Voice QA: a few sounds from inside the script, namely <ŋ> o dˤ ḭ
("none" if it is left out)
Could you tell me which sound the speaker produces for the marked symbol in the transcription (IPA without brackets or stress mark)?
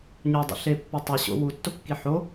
ɲ